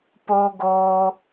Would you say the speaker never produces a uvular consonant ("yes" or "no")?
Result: yes